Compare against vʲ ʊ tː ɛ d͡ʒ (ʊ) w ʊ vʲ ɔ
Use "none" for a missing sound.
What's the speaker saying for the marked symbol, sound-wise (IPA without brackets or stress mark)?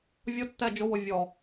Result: ʊ